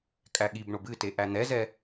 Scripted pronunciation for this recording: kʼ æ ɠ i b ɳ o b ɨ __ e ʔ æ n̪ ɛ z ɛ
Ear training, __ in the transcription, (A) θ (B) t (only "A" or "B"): B